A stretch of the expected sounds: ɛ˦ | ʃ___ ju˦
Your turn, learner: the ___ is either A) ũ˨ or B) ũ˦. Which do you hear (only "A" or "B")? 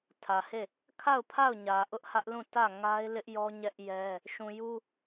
A